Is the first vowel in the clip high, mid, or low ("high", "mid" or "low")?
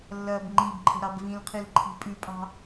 low